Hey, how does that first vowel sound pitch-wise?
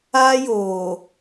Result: high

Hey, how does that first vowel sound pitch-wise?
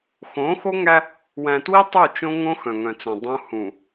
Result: rising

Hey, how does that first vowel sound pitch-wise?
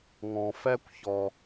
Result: low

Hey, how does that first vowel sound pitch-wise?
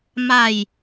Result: low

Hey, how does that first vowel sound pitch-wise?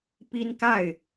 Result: high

